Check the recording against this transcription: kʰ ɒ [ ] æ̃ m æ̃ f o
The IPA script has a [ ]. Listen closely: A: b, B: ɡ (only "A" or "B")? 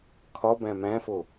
A